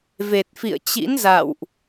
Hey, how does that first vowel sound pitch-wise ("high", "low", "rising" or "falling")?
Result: low